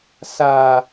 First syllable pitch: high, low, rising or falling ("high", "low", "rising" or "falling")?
low